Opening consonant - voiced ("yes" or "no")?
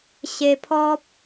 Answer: no